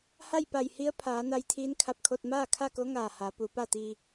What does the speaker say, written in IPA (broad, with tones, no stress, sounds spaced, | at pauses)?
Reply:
h a˥˨ j p a˧˩ j h i˧˥ ə̯ pʰ aː˩˧ n a˧ j t̪ʰ iː˧˥ n kʰ a˧ p̚ kʰ o˧ t̚ m aː˥˨ kʰ a˥˨ k o˧˥ ŋ aː˧˩ h a˩˧ p u˩˧ p a˥˨ t̪ iː˧